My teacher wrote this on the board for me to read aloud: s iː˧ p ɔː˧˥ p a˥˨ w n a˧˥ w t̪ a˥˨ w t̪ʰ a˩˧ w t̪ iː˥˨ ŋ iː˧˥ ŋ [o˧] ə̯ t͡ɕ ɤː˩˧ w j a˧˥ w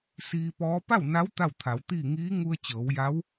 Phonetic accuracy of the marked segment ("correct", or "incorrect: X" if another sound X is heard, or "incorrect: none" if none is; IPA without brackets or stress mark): incorrect: u˧